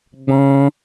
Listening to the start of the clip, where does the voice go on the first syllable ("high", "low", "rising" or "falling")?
high